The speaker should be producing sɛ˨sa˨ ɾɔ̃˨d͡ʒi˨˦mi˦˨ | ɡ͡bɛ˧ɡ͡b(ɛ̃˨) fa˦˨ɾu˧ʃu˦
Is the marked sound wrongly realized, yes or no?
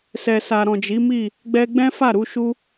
yes